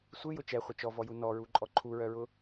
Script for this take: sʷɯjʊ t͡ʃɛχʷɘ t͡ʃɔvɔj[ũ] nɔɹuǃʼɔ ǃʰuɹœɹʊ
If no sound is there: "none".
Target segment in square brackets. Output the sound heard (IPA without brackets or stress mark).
u